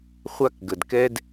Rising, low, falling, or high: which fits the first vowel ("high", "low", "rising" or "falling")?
high